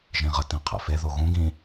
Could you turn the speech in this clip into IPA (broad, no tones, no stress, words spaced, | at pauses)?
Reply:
ʒĩʁə tĩqʰḛfe ðoɣũ ɡĩ